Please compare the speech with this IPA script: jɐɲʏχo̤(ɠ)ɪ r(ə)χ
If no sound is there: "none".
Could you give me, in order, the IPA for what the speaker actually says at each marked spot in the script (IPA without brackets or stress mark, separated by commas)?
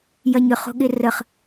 ɠ, ə